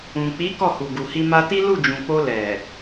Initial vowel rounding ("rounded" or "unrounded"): rounded